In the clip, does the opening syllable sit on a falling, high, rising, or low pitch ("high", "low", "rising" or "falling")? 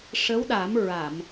rising